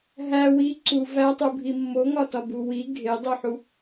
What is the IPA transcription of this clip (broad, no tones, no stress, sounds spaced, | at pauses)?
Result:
ɦ æ w i ǀ u v æ tˤ u bʱ i mː o ŋ ɒ t ɒ b u w i ɡʱ e dˤ u ħ u